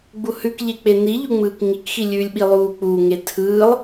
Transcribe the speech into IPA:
ɡ͡b u h ʉ k ʎ e k͡p e n i ʎ u ŋ͡m ɯː k ŋ i k x i lʲ ʉː lʲ ɓ i lˠ uː k͡p u ŋ e tʰ ɯː lˠ

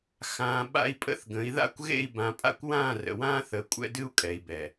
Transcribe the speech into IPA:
x ãː˨ ɓ a̰˦ i̯ pʼ ə̰˦ θ ɡ ə̃˨˦ i̯ ð a̰˦ kʷ ɣ ḛ˦˨ i̯ b ã˨ pʼ a̰˦ kʷ w ãː˦˨ r ə̰˨ w ãː˦ θ əː˨ kʷʼ ɛ̰˦ d ɨ˦ u̯ kʼ ɛ˨ i̯ b ɛ˨

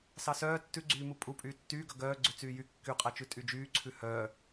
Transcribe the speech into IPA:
s ɑ s œː tː ʉ ɡ͡ǀ yː m u pʼ u pʼ yː tː yː ɡ œ ɡ œː ɡ͡ǀ ʉ t͡s yː j y kː y qʼ æ t͡ʃ ʉ tʼ y d͡ʒ yː ǀʰ ʉ h œː

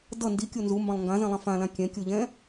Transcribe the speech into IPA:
d ʌ n d i kʲ o n z u m b ã lˠ ŋ ɡ ã z ɛ̃ lˠ ã f ã l ã kʲ ɛ̃ kʲ o ʎ ɛ̃

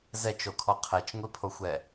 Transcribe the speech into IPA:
z ɛ t͡ʃ o kʰ ɔ qʰ ɛ t͡ʃ ŋʷ i pʰ o xʷ ɛ

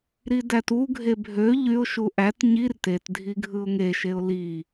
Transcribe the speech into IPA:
ɾ i d æ t u ɡʱ e bʱ ø ʎ y ʊ̯ ʃ u ʔ æ t ɲ i r t e t dʱ i ɡʱ ɯ ʊ̯ ŋ e ʃ e ʊ̯ l i

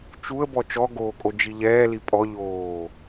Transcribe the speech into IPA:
t͡ʃ u ə̯ b ɔ t͡ʃ ɔ ɡ oː kʼ o d͡ʒ i ʎ ɛː l i pʼ ɔ ʎ oː

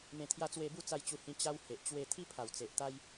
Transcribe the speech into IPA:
m ẽ˨˩ t̪ʰ j a˧ t͡s w e˧ b u˥˧ t͡s a˧ j t͡ɕ u˧ h ĩ˧ t͡ɕ a˦ w h e˨ ʔ t͡ɕ w e˥˧ t̪ʰ i˦ pʰ a˨˩ w t͡s e˨ ʔ t̪ a˦ j

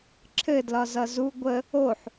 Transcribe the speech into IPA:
ǁʰ ɘ d l ɒ z ʌ z u ɡʷ ə | o ħ

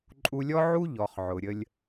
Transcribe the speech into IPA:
ǃʼ u˧ lʲ ɔ˦ ʕ u˦ ʎ ɔ˨ χ ʕ ʊ˨ ɾʲ ə˧ lʲ

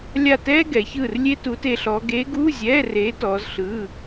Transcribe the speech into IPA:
lʲ a˦˨ t ɛː˥ ɡ ɛ˩˧ ç ɯː˦˨ r lʲ e˥ t uː˧˥ t e˧˥ ɬ ɔː˧˥ ɡ eː˧˥ ɡ uː˧˥˧ zʲ ɛː˧˥˧ r eː˧˥ t ɔː˧˥ z ɬ ɯː˧˥˧

